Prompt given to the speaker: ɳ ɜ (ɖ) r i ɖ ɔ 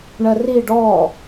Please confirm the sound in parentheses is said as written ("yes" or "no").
no